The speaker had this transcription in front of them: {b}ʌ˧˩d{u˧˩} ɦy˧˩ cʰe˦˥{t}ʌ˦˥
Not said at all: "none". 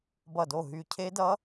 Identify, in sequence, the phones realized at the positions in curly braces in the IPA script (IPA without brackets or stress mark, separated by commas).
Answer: b, o˧˩, d